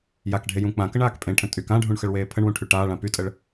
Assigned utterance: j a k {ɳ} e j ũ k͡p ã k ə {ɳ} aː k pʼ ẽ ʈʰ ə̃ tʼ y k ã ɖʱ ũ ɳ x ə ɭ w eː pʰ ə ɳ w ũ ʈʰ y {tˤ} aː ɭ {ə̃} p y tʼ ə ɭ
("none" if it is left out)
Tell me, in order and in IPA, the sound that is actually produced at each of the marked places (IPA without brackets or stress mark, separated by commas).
ɖʱ, ɳ, ʈ, ã